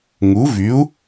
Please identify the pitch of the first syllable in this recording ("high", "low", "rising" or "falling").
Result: rising